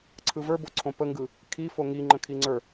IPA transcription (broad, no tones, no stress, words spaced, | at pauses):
ǀʰɯvə˞ boǀʰõpəŋɡɯ | kʰi foŋi ŋ͡ǃə̃kʰiŋ͡ǀə˞